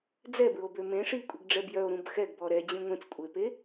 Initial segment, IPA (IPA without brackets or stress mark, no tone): d͡z